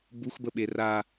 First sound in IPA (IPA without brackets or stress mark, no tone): b